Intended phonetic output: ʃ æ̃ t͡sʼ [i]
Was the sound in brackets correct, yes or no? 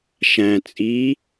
yes